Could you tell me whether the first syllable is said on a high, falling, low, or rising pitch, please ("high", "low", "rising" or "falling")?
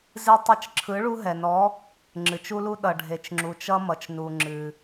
high